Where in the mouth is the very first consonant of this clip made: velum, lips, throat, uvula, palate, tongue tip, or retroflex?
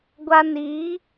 velum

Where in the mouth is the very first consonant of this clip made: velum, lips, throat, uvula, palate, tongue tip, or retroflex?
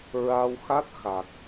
tongue tip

